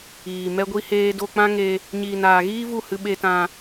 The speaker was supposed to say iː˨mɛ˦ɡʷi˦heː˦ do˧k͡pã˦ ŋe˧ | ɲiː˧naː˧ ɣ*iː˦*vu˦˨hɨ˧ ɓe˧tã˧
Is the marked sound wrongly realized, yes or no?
no